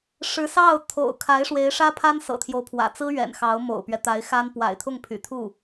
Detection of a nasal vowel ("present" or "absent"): absent